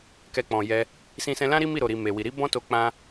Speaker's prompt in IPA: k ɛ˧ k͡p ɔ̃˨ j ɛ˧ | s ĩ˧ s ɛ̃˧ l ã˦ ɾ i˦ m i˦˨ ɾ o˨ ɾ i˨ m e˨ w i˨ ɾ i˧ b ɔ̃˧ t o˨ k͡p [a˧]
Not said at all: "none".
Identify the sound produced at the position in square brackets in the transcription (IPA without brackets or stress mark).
ã˧